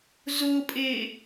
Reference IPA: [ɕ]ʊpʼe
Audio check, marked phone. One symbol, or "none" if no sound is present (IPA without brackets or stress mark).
z